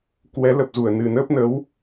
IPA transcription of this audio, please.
k w ɛ˨˦ l ə˨˩ p̚ z u˧˩ ə̯ n ɨ˨˩ n əː˦˥ p̚ n ə˨˦ w

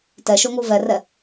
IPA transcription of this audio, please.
t ɛ ʃ o ŋ u v ɛ r ɛ

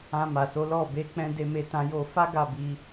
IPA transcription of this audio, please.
ã˧ m a˨ s o˨˦ l ɔ˦˨ b e˨˦ k͡p ɛ̃˧ d e˧ m e˧ t ã˧ j o˧ f a˦ ɡ a˦˨ b i˧

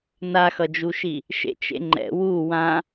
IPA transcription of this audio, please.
n a x ʌ d͡ʒ u ʃ i | ʃ ḛ t͡ʃ ḛ ŋ͡ǃ ɛ̰ w u w ã

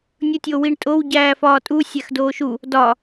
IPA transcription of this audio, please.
nʲ u tʲ o w i ɳ tʼ o w ɟ æː f ɒː tʼ u sʲ æ x d oː ʃ u | d ɒ

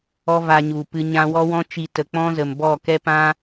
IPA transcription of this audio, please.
ɔ˦ v a˧ ɲ u˨ p ɨ˧ ɲ ã˧ w ɔ˦ w ɔ̃˦ t͡ʃ i˧ t ə˨ k͡p ɔ̃˦ z ə˨ m b ɔ˦˨ k ɛ˦ p ã˦

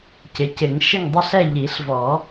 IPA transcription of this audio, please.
c ɪ˩˥ c ɪ˨˩˦ ŋ ʃ ɪ˦˨ ŋ dˤ i˦˨ ɬ ɛ˦˨ ʎ i˨˩˦ ɬ v ɔ˨˩˦

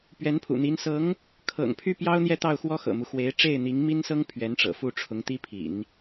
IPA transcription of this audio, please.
p ɥ ɛ˧˥ n pʰ ṵ˨˩ n̪ i˧˥ n s ɤ˧˥ ŋ | kʰ ɤ̰˨˩ ŋ pʰ y˥˩ p j ɑ˥ ʊ̯ n̪ j ɛ˥˧ t̪ ɑ˥˩ ʊ̯ x w ɔ˥ x ɤ̰˨˩ m u˦ x w e˧˥ ɪ̯ ʈ͡ʂ e˥˩ ɪ̯ n̪ i˧˥ ŋ m i˥ n s ɤ˥ ŋ pʰ ɥ ɛ˧˥ n ʈ͡ʂ ɤ̰˨˩ f u˥˩ ʈ͡ʂʰ ʊ˧˥ ŋ t̪ i˥ pʰ ḭ˨˩˦ n

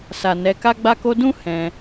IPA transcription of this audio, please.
s a˨ n ɛ˨˦ k a˧ ɡ͡b a˧ k o˧ d ũ˦ h ɛ̃˧

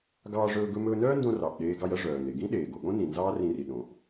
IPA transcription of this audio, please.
ɡ ɑː˧ ʐ ɵː˧ ɡ ɵ˧ m ɵː˧ n œː˥ n d õ˧ r ɑ˩ ʔ ɗ eː˧ ɡ ɑ˧ j ɐ˥ ʐ œː˩ n e˩ ɡ ĩ˥ ɗ eː˩ ɡ o˩ ɠ õ˥ n ĩ˩ n z ɑː˥ r ĩ˧ r i˩ ɗ õ˩ ʔ

